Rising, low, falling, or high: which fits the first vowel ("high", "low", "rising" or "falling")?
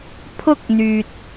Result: high